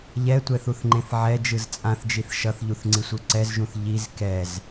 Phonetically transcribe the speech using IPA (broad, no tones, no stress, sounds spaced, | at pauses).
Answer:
ʎ ɛ tʷ ɛ θ u θ ŋ͡ǃ ẽ θ ʕ ɛ d͡ʒ ɯ z t͡sʼ ã θ d͡ʒ i θ ʃ ʌ θ ʎ u θ ŋ͡ǀ i sʷ ɯ ǀ ɛ z ʒ ũ θ ʎ i z k ɛ z